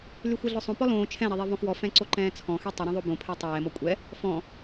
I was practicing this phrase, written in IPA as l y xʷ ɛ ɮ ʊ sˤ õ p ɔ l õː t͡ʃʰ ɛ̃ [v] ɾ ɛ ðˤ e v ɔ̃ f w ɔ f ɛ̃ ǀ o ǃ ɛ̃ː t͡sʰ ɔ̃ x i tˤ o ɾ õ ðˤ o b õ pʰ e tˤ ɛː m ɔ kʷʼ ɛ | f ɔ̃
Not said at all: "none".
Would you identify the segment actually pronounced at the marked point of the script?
none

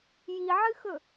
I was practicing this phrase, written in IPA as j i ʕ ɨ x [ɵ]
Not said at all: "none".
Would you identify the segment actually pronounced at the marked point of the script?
ɵ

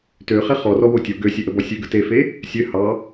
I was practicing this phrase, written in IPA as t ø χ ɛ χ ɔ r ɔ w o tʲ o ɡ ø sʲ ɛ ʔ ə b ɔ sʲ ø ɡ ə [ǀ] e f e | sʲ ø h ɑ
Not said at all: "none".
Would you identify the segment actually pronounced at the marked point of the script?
t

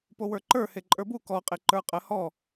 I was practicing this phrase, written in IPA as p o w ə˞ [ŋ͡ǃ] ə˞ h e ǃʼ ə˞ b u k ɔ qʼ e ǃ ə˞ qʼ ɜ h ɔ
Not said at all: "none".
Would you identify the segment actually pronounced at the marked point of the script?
ǃ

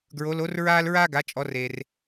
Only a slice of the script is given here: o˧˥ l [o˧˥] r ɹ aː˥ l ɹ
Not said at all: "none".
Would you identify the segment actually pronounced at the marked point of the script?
o˧˥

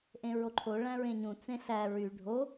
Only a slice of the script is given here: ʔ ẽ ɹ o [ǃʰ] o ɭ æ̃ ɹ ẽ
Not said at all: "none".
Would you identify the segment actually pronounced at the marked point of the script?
ǃʰ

